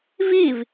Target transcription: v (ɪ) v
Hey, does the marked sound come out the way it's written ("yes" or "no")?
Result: no